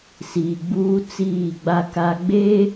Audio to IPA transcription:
siː˨ɡ͡buː˦t͡siː˦˨ɡ͡ba˦ ka˦ ɡ͡beː˦

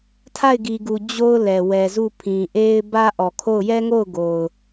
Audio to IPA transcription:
tʰa˦˨ɪ̯ɡi˨ɡu˨ d͡ʑo˦ʊ̯lɛ˨ wɛ˨zu˦˨pʰĩ˨ ʔe˦ɪ̯ bä˦ʔɔ˨kʰo˦˨ʊ̯ jɛ˦ŋo˦˨ʊ̯ ɡo˨ʊ̯

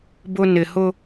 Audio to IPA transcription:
bʊ˨ nɪ˨hʊ˦

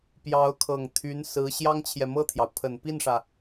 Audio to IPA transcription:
pjɑ˧˥ʊ̯kʰɤ˨˩ŋ t̪ʰy˧˥nsɹ̩˧˥ ɕjɑ˥ŋt͡ɕʰjɛ˨mɤ˥˩t̪ʰjɑ˩ʊ̯ pʰə˨˩npi˥˩nʂä˩

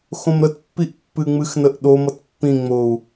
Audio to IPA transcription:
xõmɾətpːiʔ pːɨŋ͡mɨxnəʔ ɗomʌt pːĩŋ͡mou̯

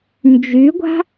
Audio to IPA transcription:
nd͡ʒyɡʷa̤

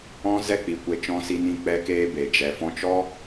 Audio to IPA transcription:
ɔ̃˦zɛ˦k͡pi˨kʷe˧ t͡ʃɔ̃˧si˧nĩ˧ k͡pɛ˧keː˧ be˨ d͡ʒɛ˨fɔ̃˧t͡ʃɔ˦

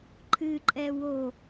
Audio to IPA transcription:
ǃʰɨǃʼɛ wo

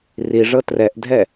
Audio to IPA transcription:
riʐɤ trɛʔdʱɛ

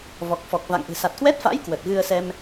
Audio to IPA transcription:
vɔ˨˩k̚fɔ˨˩k̚va̰˧˨ŋʔɨ̤˨˩ sa˨˩t̚kwɛ˦˥t̚fa̰˧˥j kwə˨˩t̚ɣɨ˧ə̯ sɛ˧m

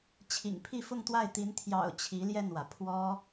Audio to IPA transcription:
t͡ɕʰḭ˨˩ŋpʰi˥˧fʊ˥˧ŋt̪wa˥˩ɪ̯ t̪i˧˥n t̪ʰjɑ̰˨˩ʊ̯ t͡ɕʰi˧˥ljɛ˥˩nwä˩ pʰwɔ˥

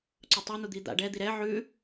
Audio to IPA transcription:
ǀʊtˤi n̪ud̪id̪a̰ ɖɛ d̪iɾɛ ʕʉ

